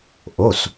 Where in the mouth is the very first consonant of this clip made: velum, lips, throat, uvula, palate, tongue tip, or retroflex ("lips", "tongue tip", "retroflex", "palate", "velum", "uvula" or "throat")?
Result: throat